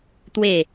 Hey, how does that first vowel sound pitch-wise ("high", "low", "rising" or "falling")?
falling